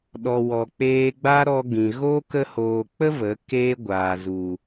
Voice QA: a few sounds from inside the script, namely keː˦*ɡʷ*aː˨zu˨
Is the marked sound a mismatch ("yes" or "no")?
no